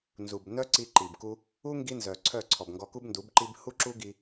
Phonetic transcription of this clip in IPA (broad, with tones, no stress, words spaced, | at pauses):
nzu˨bnœ˦ǀi˧ ǃi˨b ku˧ | u˦ ŋɡi˦nzœ˨ǀʰœ˦˨ǀʰɔ˨b ŋɡɔ˧ku˦bndu˨˦bǃi˦b hu˦ǁu˦ɡi˧